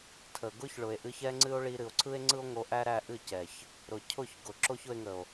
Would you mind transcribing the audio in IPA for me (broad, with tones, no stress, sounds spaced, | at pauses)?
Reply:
tʰ ə˨ ɡ ʊ˦ ç ɭ ʊ˨ e̯ ʔ ɨ˧ ç ɛ˦ ŋ͡ǀ ɨ˦ o̯ ɭ i˧ ɾ ɨ˨ o̯ ǀʰ ɯ˦ e̯ ŋ͡ǀ ɯ˦ o̯ ŋ o˧ ʔ æ˦ ɾ æ˦ ʔ ɨ˦˨ c ɛ˨ ç | ɾ ʊ˨ cʰ ʊ˦˨ ç ɡ ʊ˨ ǁ o˦ ç ʊ˧ e̯ ŋ ə˨ o̯